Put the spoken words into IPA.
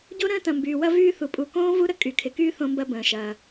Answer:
ɟ o˥ ɾ ə̃ː˥ t ɐ̃˩ m b yː˩ w ɐ˥ v yː˦ θ u˩ pʼ u˨ k õː˥ v u˥ ɾ ə˥ kʼ y˩ kʰ ɪ˩ k yː˦ θ õ˦ m b ɐ˦ b ə̃ː˩ ʃ ɐː˩

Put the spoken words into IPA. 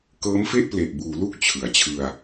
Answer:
k ɤː˦˥ m f e˥˩ ʔ p l e˨˩ ʔ b uː˩˦ l u˥˩ k̚ t͡ɕʰ ɯ˩˦ a̯ t͡ɕʰ ɯ˧ a̯

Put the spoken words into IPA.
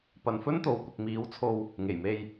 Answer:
p ɐ˨ n f ɵ˥ n t̪ o˨˧ w kʷ ɪ˨ k̚ m iː˨˥ w t͡sʰ o˧ w | ŋ e˨˩ j m e˧ j

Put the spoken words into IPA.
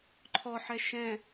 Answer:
ǃʰ ɔ ħ ɛ ʃ ɛ̃

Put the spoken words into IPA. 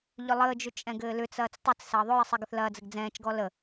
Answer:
ʎ ʏ lˠ əː d͡ʒ ʏ t͡ʃʼ ɛ̃ ɡ ɘː l ʏ t͡s ɐː t͡s tˤ ɘ t͡s s ɐː ðˤ ʏ j ə sˤ ɛ ɡ ə θ l ɐː d͡z ɘ ɡ d͡z ɛ̃ː t͡ʃ ɡ ɔ l ə

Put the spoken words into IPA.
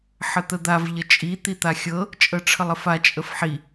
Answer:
ħ ə t̪ ə d̪ a v ʎ ə t͡ʃʼ i t̪ i t̪ a xʲ ɤ | t͡ʃʼ ɤ ʈ͡ʂʰ ə lˠ ə f a t͡ʃʼ ə f ħ i

